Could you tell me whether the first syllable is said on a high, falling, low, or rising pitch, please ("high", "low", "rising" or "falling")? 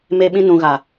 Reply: high